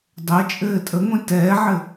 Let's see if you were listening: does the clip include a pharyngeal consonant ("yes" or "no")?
yes